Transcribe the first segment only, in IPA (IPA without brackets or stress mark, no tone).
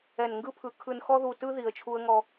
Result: ɛ